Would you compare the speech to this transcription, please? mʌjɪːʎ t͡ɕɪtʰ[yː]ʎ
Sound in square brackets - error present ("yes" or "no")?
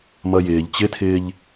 yes